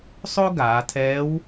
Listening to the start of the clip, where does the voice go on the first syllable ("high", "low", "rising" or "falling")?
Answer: high